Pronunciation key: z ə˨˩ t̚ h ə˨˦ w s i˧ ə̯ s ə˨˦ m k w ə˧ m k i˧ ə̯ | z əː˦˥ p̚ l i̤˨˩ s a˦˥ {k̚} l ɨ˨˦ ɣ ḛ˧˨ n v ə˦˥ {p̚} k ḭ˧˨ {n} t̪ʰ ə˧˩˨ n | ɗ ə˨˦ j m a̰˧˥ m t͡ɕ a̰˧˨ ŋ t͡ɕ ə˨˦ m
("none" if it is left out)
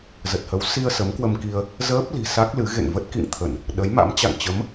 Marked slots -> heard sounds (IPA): k̚, t̚, ŋ

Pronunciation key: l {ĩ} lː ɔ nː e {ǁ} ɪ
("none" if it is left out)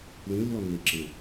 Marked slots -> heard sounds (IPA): ĩ, ǁ

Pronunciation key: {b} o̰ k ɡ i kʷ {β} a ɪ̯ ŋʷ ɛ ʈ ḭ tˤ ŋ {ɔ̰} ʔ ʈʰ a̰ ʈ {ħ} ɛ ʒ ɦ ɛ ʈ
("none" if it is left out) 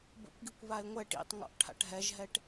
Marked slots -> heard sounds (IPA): b, β, ɔ̰, ɦ

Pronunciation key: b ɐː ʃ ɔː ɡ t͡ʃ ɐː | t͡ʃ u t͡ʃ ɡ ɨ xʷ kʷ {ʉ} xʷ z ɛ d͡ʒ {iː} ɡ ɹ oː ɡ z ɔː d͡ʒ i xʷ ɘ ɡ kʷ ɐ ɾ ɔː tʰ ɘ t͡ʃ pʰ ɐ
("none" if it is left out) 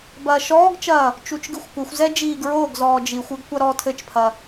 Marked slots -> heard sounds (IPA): ɘ, iː

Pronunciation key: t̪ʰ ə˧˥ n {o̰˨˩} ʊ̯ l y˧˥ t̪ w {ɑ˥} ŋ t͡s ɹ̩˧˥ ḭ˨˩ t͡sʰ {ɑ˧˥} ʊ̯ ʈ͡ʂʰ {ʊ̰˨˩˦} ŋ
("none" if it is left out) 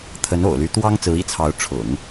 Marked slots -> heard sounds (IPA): o̰˨˩, ɑ˥, ɑ˧˥, ʊ̰˨˩˦

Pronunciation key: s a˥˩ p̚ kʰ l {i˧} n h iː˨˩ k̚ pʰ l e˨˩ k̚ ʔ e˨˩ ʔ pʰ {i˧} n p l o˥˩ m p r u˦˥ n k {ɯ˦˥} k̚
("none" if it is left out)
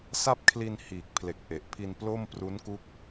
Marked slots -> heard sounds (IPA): i˧, i˧, u˦˥

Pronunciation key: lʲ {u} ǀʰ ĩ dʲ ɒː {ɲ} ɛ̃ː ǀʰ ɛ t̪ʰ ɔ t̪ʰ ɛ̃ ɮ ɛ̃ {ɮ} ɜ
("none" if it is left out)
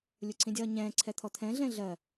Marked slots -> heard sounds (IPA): u, ɲ, ɮ

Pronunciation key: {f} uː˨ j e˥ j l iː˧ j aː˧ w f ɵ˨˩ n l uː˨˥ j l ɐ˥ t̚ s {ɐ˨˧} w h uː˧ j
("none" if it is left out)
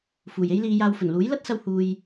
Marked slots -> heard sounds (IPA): f, ɐ˧

